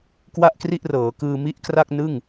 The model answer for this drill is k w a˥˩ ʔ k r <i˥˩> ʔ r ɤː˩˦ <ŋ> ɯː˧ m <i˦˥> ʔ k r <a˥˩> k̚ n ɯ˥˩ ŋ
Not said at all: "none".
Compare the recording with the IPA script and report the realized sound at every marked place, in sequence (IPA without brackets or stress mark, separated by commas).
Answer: i˥˩, k, i˥˩, a˥˩